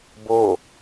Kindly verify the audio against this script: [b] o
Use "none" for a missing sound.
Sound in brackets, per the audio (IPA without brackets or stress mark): b